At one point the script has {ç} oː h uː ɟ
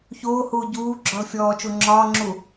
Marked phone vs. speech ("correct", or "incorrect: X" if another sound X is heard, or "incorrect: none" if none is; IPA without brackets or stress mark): correct